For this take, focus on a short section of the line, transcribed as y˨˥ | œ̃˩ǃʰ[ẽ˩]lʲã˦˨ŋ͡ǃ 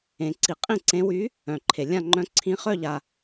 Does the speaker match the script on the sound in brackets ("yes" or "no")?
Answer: no